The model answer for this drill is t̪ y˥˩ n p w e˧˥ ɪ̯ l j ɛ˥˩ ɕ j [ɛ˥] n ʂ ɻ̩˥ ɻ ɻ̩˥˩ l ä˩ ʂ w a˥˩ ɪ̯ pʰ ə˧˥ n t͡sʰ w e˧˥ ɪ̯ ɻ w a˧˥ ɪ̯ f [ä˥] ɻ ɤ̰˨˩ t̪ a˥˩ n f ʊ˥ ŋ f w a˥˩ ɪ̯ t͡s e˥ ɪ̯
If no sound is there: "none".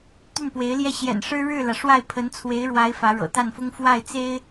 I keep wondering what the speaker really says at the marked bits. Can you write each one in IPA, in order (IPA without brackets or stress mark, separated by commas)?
ɛ̰˨˩, ä˧˥